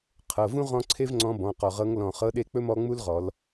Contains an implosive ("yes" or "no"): yes